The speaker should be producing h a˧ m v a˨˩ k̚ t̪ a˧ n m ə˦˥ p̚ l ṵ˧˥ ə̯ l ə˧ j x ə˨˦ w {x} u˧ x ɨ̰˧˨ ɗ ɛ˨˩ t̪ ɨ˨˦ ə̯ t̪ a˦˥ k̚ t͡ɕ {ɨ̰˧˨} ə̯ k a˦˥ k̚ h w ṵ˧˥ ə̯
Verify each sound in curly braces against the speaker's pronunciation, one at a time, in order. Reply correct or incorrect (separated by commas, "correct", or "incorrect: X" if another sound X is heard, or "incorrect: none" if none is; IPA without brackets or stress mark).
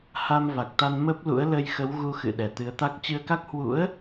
incorrect: ɣ, incorrect: ɨ˧